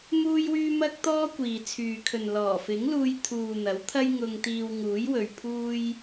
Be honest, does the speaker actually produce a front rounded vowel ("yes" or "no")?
yes